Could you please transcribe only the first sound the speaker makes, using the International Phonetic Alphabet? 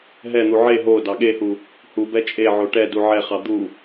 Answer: ɦ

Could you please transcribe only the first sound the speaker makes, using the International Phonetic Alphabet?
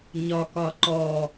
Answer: ɲ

